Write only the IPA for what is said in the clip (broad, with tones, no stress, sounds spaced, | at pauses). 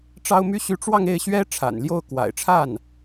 ʈ͡ʂ ɑ˥ ʊ̯ m y˥ ɕ y˥ ʈ͡ʂ w ɑ˥˧ ŋ e˥˩ ɪ̯ ɕ ɥ ɛ˥ ʈ͡ʂʰ a̰˨˩ n l j o˥˩ ʊ̯ k w a̰˨˩ ɪ̯ ʈ͡ʂʰ a˥˩ n